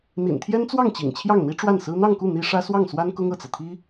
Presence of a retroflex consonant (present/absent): present